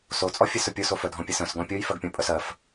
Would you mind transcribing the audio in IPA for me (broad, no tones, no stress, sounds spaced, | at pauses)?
s o t͡sʼ ɔ fʲ ɘ s ɵ pʲ o s o f œ dʱ ɔ̃ pʲ ɘ s œ̃ s ɡ ɔ̃ pʲ o j f ɜ ɡ pʲ ɔ̃ pʼ œ s ɜ f